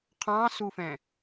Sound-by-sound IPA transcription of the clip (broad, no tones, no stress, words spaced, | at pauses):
qʰɑ̃sufɛ̃